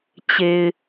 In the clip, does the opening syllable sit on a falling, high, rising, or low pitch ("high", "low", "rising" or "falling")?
low